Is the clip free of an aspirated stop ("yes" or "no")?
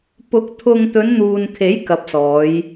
no